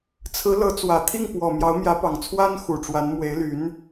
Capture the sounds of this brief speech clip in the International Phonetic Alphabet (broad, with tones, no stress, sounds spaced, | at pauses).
t͡sʰ ɹ̩˧˥ l ɤ˧˥ t͡s w ä˨˩ t̪ʰ i˥˩ ŋ p w ɔ˨˩ m j ɑ˧˥ ʊ̯ m j ä˧˥ p ɑ˨˩ ŋ t͡sʰ w a˥ n x u˨˩ ʈ͡ʂ w a˧˥ n m w e˧˥ ɪ̯ l y˧˥ n